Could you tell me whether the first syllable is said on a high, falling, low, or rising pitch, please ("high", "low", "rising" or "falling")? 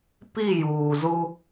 falling